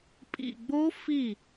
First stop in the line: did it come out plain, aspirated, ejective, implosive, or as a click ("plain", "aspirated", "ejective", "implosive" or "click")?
ejective